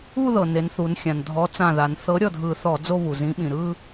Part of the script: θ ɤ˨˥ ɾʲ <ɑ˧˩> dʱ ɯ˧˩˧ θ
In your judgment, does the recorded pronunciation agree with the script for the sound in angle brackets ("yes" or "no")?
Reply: no